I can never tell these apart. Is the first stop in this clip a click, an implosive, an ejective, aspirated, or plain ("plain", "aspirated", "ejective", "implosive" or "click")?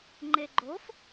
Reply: click